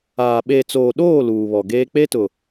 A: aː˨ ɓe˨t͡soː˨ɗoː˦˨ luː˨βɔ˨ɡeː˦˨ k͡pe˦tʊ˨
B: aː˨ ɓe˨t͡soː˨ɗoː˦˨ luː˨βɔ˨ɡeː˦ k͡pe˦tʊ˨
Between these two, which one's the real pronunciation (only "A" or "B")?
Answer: B